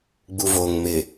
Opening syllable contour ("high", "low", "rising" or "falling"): low